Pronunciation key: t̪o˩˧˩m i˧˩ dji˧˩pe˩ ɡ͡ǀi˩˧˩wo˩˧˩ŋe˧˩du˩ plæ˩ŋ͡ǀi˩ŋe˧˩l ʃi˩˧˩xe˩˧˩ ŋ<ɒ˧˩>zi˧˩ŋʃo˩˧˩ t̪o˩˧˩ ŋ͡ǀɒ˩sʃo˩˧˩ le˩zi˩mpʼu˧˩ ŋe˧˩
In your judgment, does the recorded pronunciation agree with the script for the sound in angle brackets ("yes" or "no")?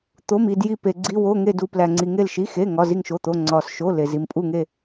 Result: no